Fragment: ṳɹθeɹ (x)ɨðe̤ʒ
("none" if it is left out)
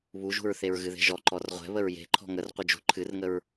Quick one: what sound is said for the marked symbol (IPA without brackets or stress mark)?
ɣ